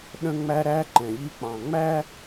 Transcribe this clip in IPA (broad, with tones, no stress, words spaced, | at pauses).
ɗə̃˦ŋ͡mæ˦ ɾæ˦ǃɛ̃˨ʎi˦k͡pɑ̃˨ ŋ͡mæ˦